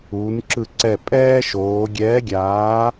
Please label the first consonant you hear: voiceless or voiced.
voiced